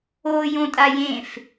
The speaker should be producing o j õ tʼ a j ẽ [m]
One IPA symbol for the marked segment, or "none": f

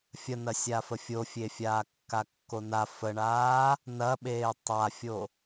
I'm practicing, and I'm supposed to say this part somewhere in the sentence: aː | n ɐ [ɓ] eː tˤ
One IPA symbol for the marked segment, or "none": ɓ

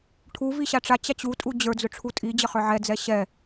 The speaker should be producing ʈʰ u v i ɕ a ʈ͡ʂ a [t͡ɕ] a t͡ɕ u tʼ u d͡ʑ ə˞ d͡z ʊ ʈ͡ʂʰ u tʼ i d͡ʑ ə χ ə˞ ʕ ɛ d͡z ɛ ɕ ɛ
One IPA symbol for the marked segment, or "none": t͡ɕ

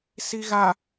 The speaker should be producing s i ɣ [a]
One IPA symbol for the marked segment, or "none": a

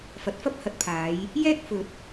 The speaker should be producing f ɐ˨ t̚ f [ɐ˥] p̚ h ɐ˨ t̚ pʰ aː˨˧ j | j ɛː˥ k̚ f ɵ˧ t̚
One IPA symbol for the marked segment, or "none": ɐ˥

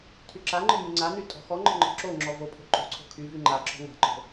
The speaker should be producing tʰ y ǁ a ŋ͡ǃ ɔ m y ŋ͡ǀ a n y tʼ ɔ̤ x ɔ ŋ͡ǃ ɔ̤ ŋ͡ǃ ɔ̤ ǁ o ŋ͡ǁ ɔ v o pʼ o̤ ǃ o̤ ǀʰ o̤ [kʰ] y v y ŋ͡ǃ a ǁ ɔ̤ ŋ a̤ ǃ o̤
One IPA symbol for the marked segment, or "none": kʰ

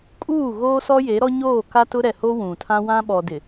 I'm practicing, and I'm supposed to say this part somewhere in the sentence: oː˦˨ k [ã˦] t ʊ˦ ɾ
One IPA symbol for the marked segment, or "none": a˦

